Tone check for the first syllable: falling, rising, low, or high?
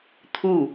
falling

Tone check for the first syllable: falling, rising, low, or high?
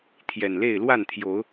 low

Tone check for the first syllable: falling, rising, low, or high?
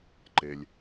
low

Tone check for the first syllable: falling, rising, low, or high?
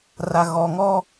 low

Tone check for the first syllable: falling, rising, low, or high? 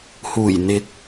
low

